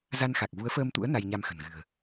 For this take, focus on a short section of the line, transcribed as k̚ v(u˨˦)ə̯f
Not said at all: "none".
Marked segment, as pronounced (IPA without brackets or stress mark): u˨˦